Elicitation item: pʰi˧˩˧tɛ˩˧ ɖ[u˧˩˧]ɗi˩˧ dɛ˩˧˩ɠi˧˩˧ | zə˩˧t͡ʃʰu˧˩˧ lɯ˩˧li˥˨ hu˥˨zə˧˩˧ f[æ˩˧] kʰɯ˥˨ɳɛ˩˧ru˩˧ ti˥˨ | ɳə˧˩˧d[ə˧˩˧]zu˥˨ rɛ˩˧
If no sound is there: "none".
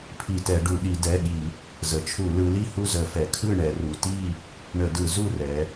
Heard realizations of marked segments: u˧˩˧, ɛ˩˧, ɯ˧˩˧

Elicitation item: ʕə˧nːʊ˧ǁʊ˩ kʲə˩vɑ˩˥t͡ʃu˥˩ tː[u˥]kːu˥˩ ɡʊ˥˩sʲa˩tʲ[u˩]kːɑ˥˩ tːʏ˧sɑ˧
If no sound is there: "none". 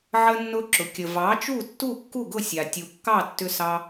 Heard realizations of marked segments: u˥˩, u˩

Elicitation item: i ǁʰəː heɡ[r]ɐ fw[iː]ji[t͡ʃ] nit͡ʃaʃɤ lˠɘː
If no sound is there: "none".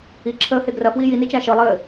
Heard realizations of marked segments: r, iː, none

